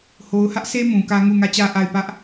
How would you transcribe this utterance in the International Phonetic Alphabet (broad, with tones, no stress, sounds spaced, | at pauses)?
h o˨ ʊ̯ h ä˦ ʔ sʰ e˦ m ũ˨ k ä˦ ŋ u˦˨ ŋ ä˦˨ t͡ɕ ä˦ ʔ a˦˨ ɪ̯ p ä˦ ʔ